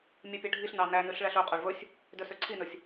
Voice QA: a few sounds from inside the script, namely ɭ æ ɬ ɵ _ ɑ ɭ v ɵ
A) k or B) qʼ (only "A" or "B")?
B